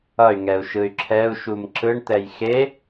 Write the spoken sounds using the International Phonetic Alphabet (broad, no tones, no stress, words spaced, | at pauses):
ʌy̯ŋɛu̯ʃɯy̯ ǁʰɛu̯ʃum ǁɯɳt̪ɛj xe